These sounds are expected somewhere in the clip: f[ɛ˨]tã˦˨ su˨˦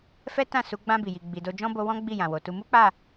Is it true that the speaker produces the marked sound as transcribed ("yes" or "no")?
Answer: no